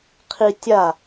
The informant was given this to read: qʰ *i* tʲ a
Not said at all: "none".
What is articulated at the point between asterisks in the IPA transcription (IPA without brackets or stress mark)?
i